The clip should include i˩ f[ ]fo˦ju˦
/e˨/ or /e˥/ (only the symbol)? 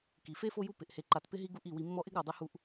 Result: e˥